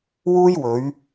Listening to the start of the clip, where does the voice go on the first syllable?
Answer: high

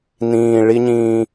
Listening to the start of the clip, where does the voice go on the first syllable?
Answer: low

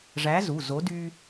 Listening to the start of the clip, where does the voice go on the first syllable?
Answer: rising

